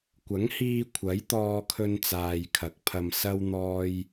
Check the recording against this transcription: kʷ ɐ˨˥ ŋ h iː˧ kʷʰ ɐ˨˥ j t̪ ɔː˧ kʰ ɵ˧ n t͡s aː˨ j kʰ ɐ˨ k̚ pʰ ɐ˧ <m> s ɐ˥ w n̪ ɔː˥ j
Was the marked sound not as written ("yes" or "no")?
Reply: no